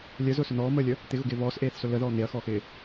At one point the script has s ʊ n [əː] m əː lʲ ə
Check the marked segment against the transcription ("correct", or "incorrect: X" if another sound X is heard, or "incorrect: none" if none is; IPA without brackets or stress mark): incorrect: ɔː